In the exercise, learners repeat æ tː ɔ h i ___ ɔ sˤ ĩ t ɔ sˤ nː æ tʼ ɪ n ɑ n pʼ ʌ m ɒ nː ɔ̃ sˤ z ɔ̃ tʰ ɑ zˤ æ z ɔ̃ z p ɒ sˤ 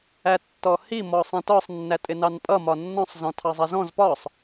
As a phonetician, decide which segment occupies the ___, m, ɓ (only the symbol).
m